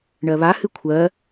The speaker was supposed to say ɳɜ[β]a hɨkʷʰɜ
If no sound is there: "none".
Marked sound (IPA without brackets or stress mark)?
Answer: β